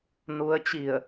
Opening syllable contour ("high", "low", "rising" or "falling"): rising